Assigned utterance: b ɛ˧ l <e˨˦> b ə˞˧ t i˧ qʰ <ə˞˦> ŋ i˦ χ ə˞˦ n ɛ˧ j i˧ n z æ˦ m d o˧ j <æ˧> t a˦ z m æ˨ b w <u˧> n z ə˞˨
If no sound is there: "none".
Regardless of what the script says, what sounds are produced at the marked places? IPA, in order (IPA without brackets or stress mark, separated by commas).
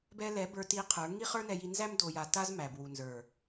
ɛ˨˦, ə˞˨˦, a˧, u˨